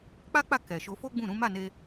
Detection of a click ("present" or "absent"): absent